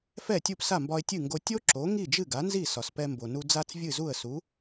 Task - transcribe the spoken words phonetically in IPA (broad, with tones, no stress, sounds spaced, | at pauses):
f ɛ˥˩ tʲ u˥˩ p s a˥˩ m b ɒ˧ ɪ̯ tʲ ɨ˥˩ ŋ ɡ o˧ tʲ o˥ ǁ o˩˥ ŋ i˥˩ d͡ʒ ɨ˥˩ ɡ a˩˥ n z i˥˩ s ɒ˩ s p ɛ˧ m b o˩ n u˧ d͡z a˥ t͡s vʲ ɨ˥˩ z u˥˩ ə̯ s u˩˥